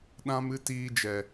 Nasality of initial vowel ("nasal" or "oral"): nasal